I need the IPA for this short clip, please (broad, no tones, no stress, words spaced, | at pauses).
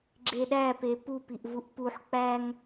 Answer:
ɡ͡ǁeɗæpe pupiʔvuʔ puħ k͡pæŋ